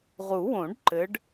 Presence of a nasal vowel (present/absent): present